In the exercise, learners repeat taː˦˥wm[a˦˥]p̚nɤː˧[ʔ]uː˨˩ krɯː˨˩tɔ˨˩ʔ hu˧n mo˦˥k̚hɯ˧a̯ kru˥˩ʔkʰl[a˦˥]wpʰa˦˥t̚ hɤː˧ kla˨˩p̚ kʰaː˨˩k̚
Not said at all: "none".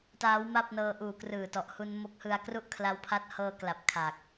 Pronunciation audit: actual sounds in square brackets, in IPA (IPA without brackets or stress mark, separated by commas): a˥˩, ʔ, a˦˥